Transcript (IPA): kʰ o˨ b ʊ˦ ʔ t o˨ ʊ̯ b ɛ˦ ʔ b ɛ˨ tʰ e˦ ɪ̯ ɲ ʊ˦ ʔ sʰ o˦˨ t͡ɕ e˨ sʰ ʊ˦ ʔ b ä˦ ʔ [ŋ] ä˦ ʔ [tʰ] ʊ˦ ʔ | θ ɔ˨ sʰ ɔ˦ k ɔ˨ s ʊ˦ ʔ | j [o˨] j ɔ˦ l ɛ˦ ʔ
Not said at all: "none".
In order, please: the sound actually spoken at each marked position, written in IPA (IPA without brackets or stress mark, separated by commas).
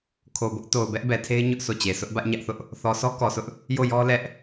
ɲ, θ, o˦˨